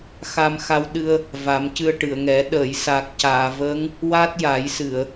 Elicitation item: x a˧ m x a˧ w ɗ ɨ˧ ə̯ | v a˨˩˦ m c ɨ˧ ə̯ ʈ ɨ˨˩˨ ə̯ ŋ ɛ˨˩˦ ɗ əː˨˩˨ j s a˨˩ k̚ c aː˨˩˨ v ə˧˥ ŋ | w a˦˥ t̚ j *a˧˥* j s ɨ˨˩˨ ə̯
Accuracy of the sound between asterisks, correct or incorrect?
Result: incorrect